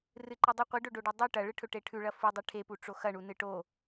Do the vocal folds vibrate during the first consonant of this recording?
yes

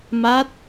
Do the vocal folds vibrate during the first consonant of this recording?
yes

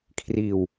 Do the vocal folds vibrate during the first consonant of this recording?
no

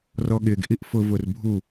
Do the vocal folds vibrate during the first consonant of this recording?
yes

